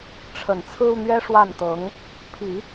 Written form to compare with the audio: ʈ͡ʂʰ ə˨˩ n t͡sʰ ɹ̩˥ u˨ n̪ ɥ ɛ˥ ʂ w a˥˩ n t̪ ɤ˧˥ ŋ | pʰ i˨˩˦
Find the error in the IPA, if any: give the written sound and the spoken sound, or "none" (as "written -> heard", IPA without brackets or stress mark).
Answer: none